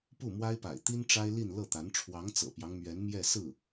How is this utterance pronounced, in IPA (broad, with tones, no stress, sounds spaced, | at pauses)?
p u˥˩ m w a˥ ɪ̯ p a̰˨˩ ɪ̯ t̪ i˥ n ʈ͡ʂ a˥ ɪ̯ l i˥˧ n l ɤ˥˩ t̪ a˧˥ n ʈ͡ʂʰ w ɑ˧˥ ŋ t͡s ɤ̰˨˩ p j ɑ˦ ŋ m ɥ ɛ˧˥ n m j ɛ˥˧ s ɹ̩˥˩